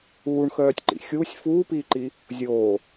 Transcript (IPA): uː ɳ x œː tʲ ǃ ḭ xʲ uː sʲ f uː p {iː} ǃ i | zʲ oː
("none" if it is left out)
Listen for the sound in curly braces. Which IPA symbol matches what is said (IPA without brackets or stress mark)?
iː